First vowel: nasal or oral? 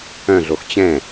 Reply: nasal